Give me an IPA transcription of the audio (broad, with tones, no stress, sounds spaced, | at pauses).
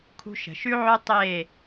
kʰ ṳ˦ ʃ ə̤˨ ʃ ʉ˦ ʕ ø˦ tˤ e˦˨